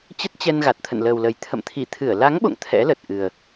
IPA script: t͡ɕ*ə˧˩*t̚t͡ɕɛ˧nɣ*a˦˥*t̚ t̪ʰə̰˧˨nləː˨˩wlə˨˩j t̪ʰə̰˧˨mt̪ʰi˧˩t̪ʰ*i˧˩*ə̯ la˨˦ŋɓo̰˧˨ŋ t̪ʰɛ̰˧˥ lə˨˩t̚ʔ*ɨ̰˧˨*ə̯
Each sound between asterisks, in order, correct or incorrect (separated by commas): incorrect, incorrect, incorrect, incorrect